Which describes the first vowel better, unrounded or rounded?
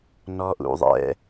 rounded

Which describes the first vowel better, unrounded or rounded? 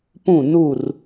rounded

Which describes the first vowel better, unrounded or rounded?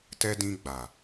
unrounded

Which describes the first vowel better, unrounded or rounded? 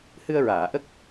unrounded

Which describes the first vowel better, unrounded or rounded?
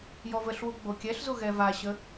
rounded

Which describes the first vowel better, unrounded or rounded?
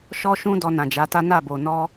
rounded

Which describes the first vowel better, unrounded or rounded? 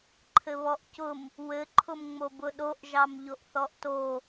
unrounded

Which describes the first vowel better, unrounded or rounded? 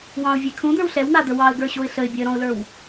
unrounded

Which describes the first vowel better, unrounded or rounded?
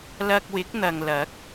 unrounded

